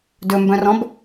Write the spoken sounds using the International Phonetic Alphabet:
d ɵ m b œ̃ r ɔ̃ b

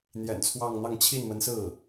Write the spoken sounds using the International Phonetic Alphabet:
n̪ j ɛ̰˨˩ n t͡sʰ w ɑ˥˧ ŋ n̪ ɑ˥˧ ŋ t͡ɕʰ i˥˩ n m ə˧˥ n s ɹ̩˥˩

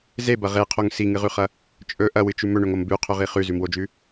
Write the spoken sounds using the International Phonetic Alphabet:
z e b ɐ ʁ e qʰ o ŋ s i ŋ ɨ ʁ ʉ χ ɐ | t͡ʃʼ ɵ ʔ ɐ w ɨ t͡ʃ ʉ m ɵ ɳ ɵ ŋ o m b ʉ qʰ ɵ ʁ i χ ʉ z ʉ m w o d͡ʒ ʉ

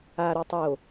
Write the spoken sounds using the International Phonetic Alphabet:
a ɾ u tˤ o

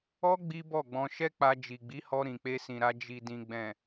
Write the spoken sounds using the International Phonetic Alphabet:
ɔ˦ ɡ͡b i˦ b ɔ˦˨ ɡ͡b ɔ̃˧ ʃ ɛ˦ k͡p a˧ d͡ʒ i˨ ɡ͡b i˨˦ h ɔ˧ ɾ ĩ˨ k͡p e˧ s ĩ˨ ɾ a˧ d͡ʒ i˨ d ĩ˨ ɡ͡b ɛ̃˨

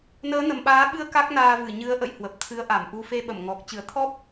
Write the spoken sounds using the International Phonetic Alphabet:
n əː˨˦ n ə˨˩ m ɓ aː˨˦ ɓ ɨ˧ ə̯ k a˦˥ k̚ n aː˧ v ɨ˧˩ ɲ ɨ˨˦ ə̯ ʔ ə̰˧˨ j h w ə˨˩ p̚ t̪ʰ ɨ˨˦ ə̯ ʔ a˧˩ m ʔ u˧ f e˧ ɓ ə˧˩ m ŋ ɔ˨˩ k̚ t͡ɕ ɨ˧˩ ə̯ t̪ʰ ɔ˦˥ p̚

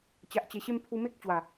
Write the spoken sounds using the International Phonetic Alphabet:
t͡ɕ a˨ ʔ t͡ɕ e˨˩ ɕ e˥˧ m pʰ u˧ m e˦ k̚ t͡ɕ w a˨˩

